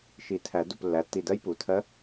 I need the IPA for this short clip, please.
ʃ i˨˩˦ tʰ æ˨˩˦ d u˧˩ p lː æ˩˧˩ tː i˧˩ d ɜ˧˥ j p u˩˧˩ tʰ ɜ˧˥

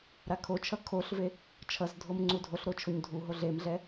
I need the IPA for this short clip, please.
ɾ a kʰ o t͡ʃʰ ʌ kʰ o ɬ v e | t͡ʃʰ ʌ z dʱ o m ŋ͡ǀ u dʱ o ɬ ɾ o t͡ʃʰ o ɲ dʱ u ɦ o ɮ e m ɮ ɛ

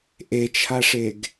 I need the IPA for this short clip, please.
ʔ e t͡ʃʰ a ʂ e ɡ

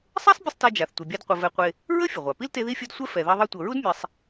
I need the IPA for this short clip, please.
sˤ ɛ˥ sˤ bʲ ə˥ sˤ t ɛ˦ d͡ʒ a˨ θ tʷ e˨ bʲ a˦ d qʷ ə˨ v ɛ˨ qʷ e˨ | ɹ ə˥ fʲ ə˩ ʁʷ a˩ p i˥ l t e˦ ð i˥ fʲ ɤ˦ d sʷ ɛ˥ f ɛ˨ ð ɛ˦ ðˤ i˦ tʷ ɤ˨ ɹ u˥ d mʲ e˨ sˤ

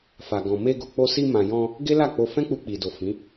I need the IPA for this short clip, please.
f a˨ ɡ ɔ̃˨ m e˧ ɡ o˨ k͡p o˧ s i˧ m ã˨ j ɔ̃˧ | ɡ e˦ l a˦˨ k͡p o˧ f ɛ̃˦ k͡p u˧ k͡p i˨ d o˨ f ĩ˨˦

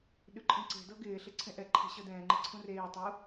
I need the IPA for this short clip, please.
ɗ ʉ ǃʼ ĩ ǀ e̤ d ɤ ɡ ɪː ɬ ɪ ǀʰ ẽ ʔ ɛ ǃʰ ɛ̤ ɕ ɤ d ɛ̃ː ŋ͡ǃ i ǀʰ ũ r eː tˤ u

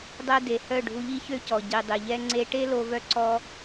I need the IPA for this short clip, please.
dˤ ɛ˧ d e˨ h œ˦˨ ɖʱ u˧ ʎ i˦ ç ø˦ c ɔ˨ ɟ i˨ dˤ i˨ ʎ ɛ˦ ŋ͡ǀ e˧ ʈ e˦ l o˧ v œ˧ ǀ ɔ˧

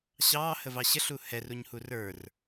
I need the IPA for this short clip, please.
ɕ ɑː h ə v ɑ ɕ ə ɬ u h ɛ r u ɲ h u r ə˞ r

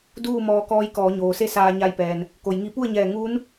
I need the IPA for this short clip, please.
d uː˥˨ m ɔː˧ k ɔː˧˥ j k ɔː˩˧ ɲ oː˩ s e˥˨ s aː˧ ɲ a˧ j p ɛː˩ n | k o˩ j ŋ i˧ p u˥˨ ə̯ ɲ ɛː˧˩ ŋ uː˧˥ n

